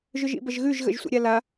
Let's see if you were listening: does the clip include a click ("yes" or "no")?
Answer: no